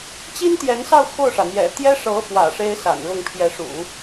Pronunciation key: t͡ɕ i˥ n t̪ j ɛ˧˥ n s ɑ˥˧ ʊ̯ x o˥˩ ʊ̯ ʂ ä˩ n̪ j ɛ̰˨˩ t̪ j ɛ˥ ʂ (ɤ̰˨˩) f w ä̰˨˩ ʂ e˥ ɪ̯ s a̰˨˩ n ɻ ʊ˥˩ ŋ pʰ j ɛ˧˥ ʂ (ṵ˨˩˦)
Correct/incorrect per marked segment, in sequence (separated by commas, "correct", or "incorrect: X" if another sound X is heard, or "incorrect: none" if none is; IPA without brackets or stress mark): incorrect: ɤ˧˥, correct